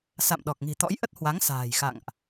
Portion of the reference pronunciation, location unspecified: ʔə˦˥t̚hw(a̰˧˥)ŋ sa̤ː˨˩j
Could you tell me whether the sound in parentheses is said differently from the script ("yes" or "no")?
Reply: yes